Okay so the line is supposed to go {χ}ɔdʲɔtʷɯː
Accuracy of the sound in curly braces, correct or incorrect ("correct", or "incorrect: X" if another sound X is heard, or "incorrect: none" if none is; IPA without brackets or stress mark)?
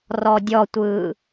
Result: incorrect: r